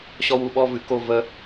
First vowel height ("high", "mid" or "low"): mid